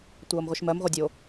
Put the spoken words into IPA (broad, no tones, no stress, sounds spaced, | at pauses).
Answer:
tʷ ʌː m ʁʷ i ʃ m ɜ m ʁʷ ɜ dʲ o